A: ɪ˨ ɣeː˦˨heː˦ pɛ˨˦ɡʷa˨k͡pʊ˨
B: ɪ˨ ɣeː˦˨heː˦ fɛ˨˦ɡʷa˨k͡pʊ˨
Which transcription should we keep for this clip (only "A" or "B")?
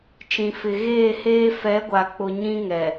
B